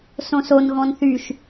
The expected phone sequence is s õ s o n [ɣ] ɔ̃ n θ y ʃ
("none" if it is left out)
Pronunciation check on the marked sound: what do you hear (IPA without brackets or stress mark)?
ɣ